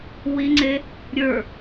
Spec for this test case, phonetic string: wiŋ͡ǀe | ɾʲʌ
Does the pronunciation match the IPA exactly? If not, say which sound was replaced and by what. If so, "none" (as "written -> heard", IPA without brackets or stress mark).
ʌ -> ə˞